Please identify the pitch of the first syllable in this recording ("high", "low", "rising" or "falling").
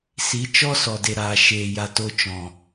rising